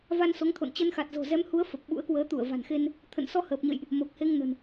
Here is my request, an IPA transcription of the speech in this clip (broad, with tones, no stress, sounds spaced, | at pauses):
v a˧ n s o˨˦ ŋ t̪ʰ o̰˧˨ n t͡ɕ ə˧ n x a˨˩ t̚ z o̤˨˩ z ɛ˨˦ m h u˨˦ ə̯ f ə˨˩ p̚ ɓ ṵ˧˥ ə̯ k w əː˨˦ t̪ u˧˩ ə̯ v a̤˨˩ n x e˧ n | t̪ʰ ə̰˧˨ n s ɔ˧ h əː˨˩ p̚ ɲ ə̰˧˨ j ʔ | m o˨˩ k̚ h e˧ ŋ n ə̤˨˩ n